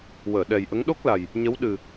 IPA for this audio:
wəː˨˩˨ɗɛ˨˩jʔə˧˥ŋ ɗo˦˥k̚la˨˩j | ɲə˧˥w ɗɨ˨˩

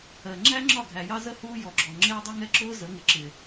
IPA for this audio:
ɜ˨ ŋ͡ǁæ˦ŋ͡ǁɒ˦˨ɡʱæ˨jɑ˦ zə˦ huː˦jɔ˨ɡ͡ǁɔ˨ ŋ͡ǁɪː˦dˤʊ˦ŋɛ˦ǁʊː˦ zə˨˦ŋɪ˨ǁɪ˨

